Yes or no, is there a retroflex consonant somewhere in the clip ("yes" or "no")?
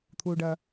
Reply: yes